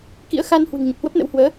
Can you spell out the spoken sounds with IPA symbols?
k ḭ˧˥ ə̯ x a˧ n h w ɨ̤˨˩ ŋ ɲ ə˨˩ p̚ h w ə˦˥ p̚ n ə̰˧˥ w h w əː˨˦

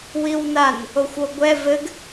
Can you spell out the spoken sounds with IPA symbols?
w i w n a n | o xʷ o ɡʷ ɛ v ɘ ɡ

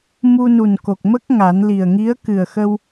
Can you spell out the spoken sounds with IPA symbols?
m u˧ n u˨˩ n k o˨˩ k̚ m ə˦˥ k̚ ŋ a˨˩˦ n l i˨˩ ə̯ ŋ i˧˥ ə̯ k ɨ˨˩ ə̯ x ə˧ w

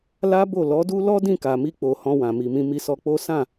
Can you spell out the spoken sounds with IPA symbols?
l a˦ b o˦˨ l ɔ˨˦ d u˦ l ɔ˦ d ĩ˦˨ k a˨ m i˧ k͡p o˨ h ɔ̃˧ w ã˨ m i˨ m ĩ˧ m i˧ s ɔ˧ k͡p o˦ s ã˦˨

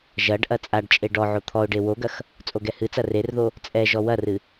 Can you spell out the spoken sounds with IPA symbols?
ʒ ɐ ɖ ʔ ɐ t͡sʼ a ɖ t͡ʃʼ e ɖ ɔ ʕ o t̪ʰ ɔ ʊ̯ ɖ e w o ɡ ɐ x | t͡sʼ o ɡ ɛ h ɨ t͡s ɐ r e r ð o | t͡sʼ ɛ ʒ ɔ w ɐ r ɨ

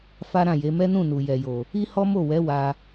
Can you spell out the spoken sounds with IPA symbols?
f a˦ ɾ ã˦˨ j e˨˦ m ɛ˦ n ũ˦˨ n u˨ j ɛ˨ j o˨ | i˦ h ɔ˦ m o˦˨ w ɛ˨˦ w a˧

